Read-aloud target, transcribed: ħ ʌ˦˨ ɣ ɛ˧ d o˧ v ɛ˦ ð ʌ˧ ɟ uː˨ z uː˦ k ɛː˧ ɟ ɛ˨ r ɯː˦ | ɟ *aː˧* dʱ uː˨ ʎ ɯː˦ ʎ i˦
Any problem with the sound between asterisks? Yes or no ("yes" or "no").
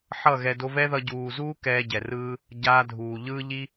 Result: no